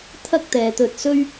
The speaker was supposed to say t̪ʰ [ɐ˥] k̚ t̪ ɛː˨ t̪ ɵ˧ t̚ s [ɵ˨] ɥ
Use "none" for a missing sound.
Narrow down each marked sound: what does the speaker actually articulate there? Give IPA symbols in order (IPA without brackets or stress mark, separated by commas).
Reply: ɐ˥, ɵ˥